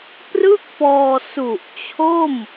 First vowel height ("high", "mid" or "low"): high